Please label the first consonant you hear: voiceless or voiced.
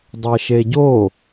voiced